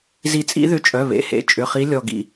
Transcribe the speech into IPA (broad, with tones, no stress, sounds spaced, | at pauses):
z i˨˩˦ t͡sʼ ḭ˨˦ ð ʏ˧˩ t͡ʃʼ œ˩˧˩ β ḛ˩˧˩ h ḛ˩˧˩ t͡ʃʼ ʏ˩˧˩ χ i˨˦ lʲ ɔ˧˩ ɡ ḭ˧˩